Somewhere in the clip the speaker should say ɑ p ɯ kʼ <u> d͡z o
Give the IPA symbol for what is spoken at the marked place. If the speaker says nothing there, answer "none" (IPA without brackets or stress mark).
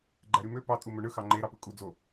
u